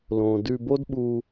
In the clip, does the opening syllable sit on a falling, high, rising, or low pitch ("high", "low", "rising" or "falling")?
low